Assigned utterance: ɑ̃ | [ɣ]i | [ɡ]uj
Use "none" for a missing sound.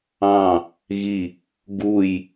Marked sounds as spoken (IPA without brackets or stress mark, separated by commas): ɣ, ɡ